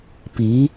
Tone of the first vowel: rising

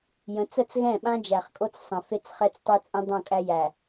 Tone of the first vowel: rising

